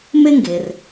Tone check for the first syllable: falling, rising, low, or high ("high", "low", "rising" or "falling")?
high